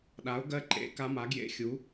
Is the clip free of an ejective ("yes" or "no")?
yes